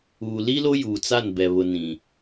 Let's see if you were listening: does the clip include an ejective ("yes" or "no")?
no